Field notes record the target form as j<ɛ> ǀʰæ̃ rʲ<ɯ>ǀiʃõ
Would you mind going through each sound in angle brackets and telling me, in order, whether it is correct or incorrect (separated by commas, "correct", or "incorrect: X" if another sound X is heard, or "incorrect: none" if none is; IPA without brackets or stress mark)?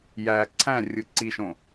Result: incorrect: æ, correct